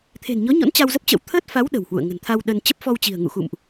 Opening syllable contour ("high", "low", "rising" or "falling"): low